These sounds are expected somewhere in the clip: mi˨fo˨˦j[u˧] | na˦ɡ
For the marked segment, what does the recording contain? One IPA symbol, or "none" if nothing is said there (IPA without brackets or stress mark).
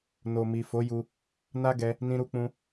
u˧